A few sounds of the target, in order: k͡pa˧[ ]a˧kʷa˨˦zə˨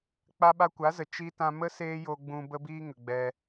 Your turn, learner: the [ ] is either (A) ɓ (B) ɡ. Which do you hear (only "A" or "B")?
A